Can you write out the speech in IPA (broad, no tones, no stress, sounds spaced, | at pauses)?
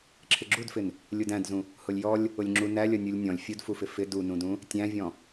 ǁʰ ɪ ɡ͡ǁ u d f ɪ n | lʲ u d æ̃ d z ũ | h ʊ lʲ j ɔ lʲ | ʊ lʲ ŋ͡ǁ u n æ lʲ ʌ nʲ u lʲ nʲ ɔ̃ lʲ fʲ u d f u f ɪ f ɪ d u n ũ d ũ | tʲ æ̃ vʲ ɔ̃